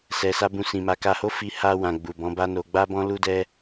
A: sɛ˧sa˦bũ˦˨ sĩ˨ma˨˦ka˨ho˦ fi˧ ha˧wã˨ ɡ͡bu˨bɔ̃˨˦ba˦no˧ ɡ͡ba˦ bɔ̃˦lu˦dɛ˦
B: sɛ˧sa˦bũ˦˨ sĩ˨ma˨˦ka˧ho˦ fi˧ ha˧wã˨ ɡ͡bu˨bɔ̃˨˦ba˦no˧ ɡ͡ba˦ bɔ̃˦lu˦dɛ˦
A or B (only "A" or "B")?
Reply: B